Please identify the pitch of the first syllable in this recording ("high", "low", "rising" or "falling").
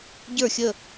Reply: falling